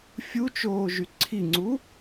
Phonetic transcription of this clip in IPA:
fʲut͡ʃoːʒy ǀʰiŋ͡ǀu

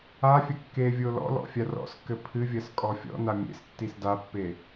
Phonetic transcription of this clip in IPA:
afʲɐ kːe vʲolɔ̰lɔ̰ fʲarɔ̰skːɘ pʰɨvʲɐs kʼɔfʲɔ̰na mʲḛs tːisdapːe

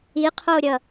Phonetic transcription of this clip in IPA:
iqʰoɾʲʌ

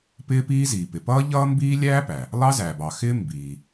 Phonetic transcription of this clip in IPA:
pɪː˥piː˥ziː˩ pɪ˩pʌː˥ʎʌː˥mbiː˥ lʲæː˥pæ˩ | lˠɑ˥zæː˩bɑ˩xɪː˥ mbiː˩

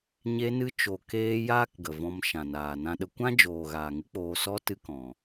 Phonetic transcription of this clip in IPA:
ɲe˧nɨ˧t͡ʃo˨ keː˧ jaː˦kɡə˨vɔ̃˧m ʃã˨naː˨nã˦ɗə˦ kʷã˦d͡ʒoː˨ɣaː˨ ŋɨ˦k͡poː˧ sɔ˦ tɨ˦kɔ̃˨

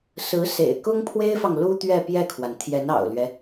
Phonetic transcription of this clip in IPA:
sɹ̩˧˥ sḛ˨˩ɪ̯kʊ˥ŋ pʰwe˥ɪ̯fɑ˨ŋ lu˥ t̪ɥɛ˥˧pjɛ˥˩kʰwa˩n t̪ʰjɛ˧˥nɑ̰˨˩ʊ̯lɥɛ˦

